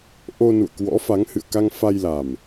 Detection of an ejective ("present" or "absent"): absent